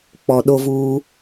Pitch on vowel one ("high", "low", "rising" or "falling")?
low